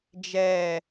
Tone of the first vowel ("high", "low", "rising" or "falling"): falling